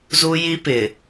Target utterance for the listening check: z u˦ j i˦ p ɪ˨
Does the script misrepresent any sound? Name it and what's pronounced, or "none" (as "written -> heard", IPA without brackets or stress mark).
none